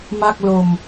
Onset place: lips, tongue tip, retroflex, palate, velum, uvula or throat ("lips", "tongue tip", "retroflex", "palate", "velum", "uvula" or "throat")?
lips